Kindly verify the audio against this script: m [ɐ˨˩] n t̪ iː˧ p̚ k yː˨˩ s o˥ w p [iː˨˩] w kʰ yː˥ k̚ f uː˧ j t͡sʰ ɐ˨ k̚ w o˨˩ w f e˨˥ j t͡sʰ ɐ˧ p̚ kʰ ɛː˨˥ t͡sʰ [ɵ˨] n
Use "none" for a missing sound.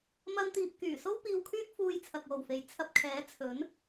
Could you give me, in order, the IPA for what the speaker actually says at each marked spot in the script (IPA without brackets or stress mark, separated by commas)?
ɐ˥, iː˧, ɵ˨˥